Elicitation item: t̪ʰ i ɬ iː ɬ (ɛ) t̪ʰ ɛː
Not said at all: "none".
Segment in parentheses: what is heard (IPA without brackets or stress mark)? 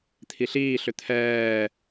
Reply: ʏ